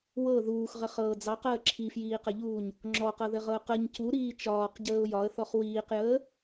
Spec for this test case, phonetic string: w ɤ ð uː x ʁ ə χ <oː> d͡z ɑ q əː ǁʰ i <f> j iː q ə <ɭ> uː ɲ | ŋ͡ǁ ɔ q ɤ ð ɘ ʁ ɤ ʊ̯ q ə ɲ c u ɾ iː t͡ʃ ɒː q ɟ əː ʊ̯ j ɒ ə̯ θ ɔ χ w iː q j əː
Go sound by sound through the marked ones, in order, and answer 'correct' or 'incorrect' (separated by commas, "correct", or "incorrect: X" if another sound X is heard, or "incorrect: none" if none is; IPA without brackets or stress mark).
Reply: incorrect: ɤː, correct, incorrect: ʎ